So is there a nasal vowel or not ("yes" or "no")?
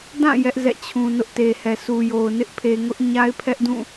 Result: yes